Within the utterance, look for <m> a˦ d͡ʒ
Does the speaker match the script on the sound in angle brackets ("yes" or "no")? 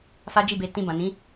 no